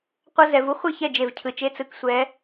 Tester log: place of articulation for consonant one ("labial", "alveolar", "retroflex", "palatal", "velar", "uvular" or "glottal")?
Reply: uvular